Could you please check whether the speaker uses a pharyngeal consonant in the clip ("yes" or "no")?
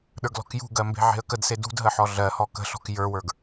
yes